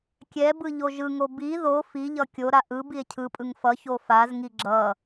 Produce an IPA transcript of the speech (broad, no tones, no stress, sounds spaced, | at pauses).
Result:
kʲ ɛ b ɯ ʎ o ʒ ɯ ŋ o b i ð o f i ʎ ʌ kʲ o ɾ a ʔ ɯ b i e̯ cʰ ɯ pʼ ɯ ŋ f ʌ ç o f a z ŋ i ɡ͡ǁ ʌ